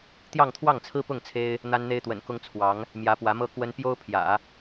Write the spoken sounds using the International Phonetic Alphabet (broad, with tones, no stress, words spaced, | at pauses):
t̪jɑ˥˧ŋt̪ʰwɑ˥˩ŋt͡sʰɹ̩˥ pʊ˥˩ŋ t͡sʰe˥ɪ̯ | n̪a˥nn̪e˥ɪ̯t̪wə̰˨˩n kʊ˥ŋt͡sʰwɑ˧˥ŋ | mjä˧˥pwä˧˥mɤ˥ kwə˥n pjo˥ʊ̯pʰjä̰˨˩˦